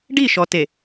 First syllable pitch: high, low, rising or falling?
falling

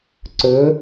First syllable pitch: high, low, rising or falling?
rising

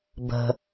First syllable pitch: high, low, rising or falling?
low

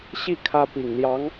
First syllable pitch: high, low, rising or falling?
falling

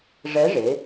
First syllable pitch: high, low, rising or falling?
rising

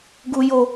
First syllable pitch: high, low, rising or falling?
high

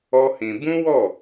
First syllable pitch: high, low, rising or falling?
high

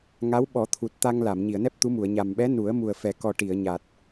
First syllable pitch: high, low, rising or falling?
rising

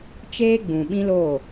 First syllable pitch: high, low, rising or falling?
high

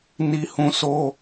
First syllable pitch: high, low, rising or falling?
high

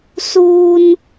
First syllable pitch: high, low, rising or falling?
high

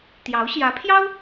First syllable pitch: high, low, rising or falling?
rising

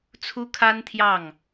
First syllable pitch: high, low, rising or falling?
high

